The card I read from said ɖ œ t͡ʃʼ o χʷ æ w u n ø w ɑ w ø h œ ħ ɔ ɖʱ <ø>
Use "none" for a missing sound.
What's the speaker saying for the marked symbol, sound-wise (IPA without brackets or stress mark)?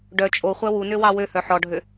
ø